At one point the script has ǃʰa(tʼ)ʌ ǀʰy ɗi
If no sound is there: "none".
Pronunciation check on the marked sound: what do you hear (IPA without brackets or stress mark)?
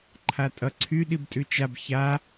tʼ